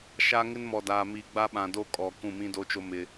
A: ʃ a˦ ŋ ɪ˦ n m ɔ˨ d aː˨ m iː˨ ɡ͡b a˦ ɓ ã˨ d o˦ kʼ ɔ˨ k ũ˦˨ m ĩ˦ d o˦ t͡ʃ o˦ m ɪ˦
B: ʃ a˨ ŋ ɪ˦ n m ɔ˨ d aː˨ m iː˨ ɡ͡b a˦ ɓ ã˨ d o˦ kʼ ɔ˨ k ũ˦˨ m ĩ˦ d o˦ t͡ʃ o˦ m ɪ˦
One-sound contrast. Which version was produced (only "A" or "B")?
A